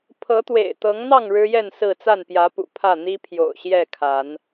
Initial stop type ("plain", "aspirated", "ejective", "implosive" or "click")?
aspirated